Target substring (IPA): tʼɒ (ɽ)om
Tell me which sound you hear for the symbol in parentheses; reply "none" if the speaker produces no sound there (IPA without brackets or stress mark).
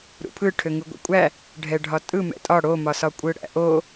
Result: ɽ